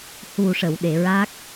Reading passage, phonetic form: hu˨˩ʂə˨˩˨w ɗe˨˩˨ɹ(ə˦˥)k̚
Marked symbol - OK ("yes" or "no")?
no